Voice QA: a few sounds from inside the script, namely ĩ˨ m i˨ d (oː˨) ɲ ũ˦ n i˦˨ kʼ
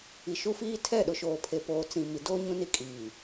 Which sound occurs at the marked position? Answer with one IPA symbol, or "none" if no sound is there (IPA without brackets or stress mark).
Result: oː˦